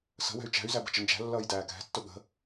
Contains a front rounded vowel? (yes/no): yes